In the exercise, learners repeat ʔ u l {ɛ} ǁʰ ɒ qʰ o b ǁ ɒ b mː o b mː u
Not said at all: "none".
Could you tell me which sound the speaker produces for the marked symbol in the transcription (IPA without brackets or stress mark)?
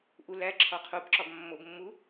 æ